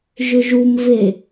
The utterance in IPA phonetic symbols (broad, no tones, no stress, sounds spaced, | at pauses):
ʒ ʏ ʒ u m v e